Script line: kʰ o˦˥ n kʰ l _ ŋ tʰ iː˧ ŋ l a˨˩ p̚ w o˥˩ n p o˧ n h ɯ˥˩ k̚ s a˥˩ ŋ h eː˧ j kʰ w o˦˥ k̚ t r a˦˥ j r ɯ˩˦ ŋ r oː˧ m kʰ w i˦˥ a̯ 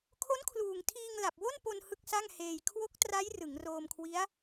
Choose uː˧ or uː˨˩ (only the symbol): uː˨˩